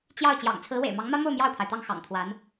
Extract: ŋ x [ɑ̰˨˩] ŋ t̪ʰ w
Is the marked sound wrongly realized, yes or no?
no